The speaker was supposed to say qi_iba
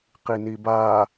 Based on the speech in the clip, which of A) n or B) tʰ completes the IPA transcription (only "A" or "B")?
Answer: A